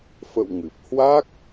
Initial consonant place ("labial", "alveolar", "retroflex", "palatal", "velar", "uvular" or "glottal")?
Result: labial